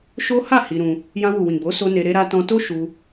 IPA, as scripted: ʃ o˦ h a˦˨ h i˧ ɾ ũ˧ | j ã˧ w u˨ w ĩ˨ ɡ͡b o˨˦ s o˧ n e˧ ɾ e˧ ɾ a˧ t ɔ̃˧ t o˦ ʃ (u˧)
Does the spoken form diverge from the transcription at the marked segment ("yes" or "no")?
no